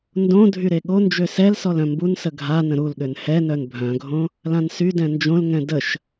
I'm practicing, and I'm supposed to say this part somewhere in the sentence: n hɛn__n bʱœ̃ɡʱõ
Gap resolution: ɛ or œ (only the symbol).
œ